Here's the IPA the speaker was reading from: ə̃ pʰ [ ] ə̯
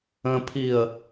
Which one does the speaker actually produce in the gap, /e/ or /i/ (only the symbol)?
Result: i